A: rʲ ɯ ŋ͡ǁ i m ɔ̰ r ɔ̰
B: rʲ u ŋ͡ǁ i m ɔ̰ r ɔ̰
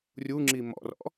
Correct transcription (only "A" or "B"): B